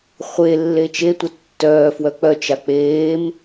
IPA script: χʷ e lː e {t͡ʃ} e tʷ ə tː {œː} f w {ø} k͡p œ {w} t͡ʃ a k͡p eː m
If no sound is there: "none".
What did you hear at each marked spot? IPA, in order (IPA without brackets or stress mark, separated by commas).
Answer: t͡ʃ, œː, œ, none